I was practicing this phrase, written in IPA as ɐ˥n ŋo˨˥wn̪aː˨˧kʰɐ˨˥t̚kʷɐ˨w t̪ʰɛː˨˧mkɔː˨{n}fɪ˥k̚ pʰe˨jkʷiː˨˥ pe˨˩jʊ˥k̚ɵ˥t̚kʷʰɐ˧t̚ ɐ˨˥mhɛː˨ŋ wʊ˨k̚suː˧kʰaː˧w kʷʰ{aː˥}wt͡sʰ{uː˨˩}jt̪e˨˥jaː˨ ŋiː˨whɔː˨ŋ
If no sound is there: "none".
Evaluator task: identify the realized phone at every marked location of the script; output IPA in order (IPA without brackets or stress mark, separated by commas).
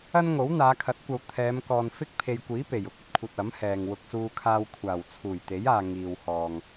n, aː˨˩, uː˨˩